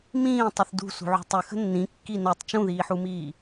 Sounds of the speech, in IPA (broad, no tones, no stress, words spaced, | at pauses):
mĩː tˤɨθdṳsṳʕṳ tˤɨxə̤ nːĩ kːinotˤ t͡ʃũðiːħumiː